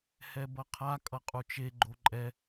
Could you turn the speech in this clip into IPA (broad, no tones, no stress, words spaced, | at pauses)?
hɛbʌqʰa kʼʌqʼut͡ʃe ɡ͡ǃoǃʼɛ